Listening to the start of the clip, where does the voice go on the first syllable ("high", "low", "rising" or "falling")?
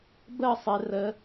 falling